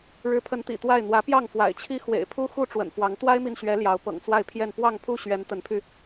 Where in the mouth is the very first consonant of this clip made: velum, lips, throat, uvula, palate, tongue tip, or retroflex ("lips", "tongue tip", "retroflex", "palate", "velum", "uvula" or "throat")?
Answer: retroflex